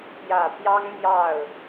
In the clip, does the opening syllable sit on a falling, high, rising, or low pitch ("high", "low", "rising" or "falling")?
low